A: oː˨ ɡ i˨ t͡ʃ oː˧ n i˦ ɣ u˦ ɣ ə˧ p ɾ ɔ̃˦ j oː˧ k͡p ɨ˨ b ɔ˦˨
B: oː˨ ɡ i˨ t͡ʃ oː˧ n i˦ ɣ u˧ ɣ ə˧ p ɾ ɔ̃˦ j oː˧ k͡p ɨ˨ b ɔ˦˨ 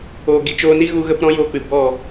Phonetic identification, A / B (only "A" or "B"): B